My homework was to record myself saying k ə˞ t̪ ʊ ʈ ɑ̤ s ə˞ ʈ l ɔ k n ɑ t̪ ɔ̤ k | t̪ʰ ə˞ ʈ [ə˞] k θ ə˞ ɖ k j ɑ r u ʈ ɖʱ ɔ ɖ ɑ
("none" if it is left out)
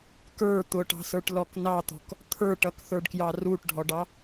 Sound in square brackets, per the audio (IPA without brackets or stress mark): ʌ